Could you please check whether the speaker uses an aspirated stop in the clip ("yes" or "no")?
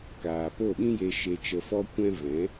no